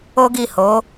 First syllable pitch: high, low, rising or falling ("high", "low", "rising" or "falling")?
high